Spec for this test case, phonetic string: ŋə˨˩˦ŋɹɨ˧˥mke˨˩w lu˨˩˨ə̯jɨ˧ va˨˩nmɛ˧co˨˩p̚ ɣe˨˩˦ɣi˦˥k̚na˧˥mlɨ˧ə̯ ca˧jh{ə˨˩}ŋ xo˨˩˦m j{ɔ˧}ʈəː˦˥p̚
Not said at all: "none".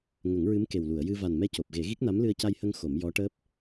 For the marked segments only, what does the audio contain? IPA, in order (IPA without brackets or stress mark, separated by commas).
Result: ə˧, ɔ˧˥